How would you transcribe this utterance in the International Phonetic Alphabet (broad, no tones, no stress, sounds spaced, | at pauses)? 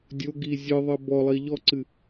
dʲ o ɡ i zʲ ɨ ðˤ ɘ b ɔ lˠ i ʎ ɔ ǀ ɨ